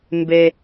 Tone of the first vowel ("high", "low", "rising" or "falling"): low